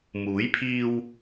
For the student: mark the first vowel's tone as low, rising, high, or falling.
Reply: rising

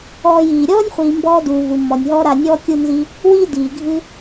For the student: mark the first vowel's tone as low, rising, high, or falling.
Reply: low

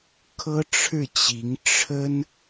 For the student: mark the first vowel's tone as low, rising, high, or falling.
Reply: high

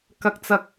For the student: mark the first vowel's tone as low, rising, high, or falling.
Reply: high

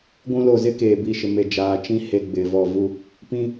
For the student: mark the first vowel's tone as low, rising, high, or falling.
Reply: high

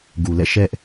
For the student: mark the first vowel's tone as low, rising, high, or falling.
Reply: low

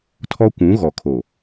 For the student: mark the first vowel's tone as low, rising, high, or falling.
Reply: high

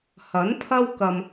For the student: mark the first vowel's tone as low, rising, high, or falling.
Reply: rising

